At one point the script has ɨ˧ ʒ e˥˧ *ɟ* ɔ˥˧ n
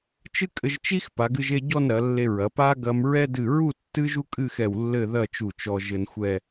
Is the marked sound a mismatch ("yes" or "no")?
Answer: no